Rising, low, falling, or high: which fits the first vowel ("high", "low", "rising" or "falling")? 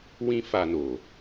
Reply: high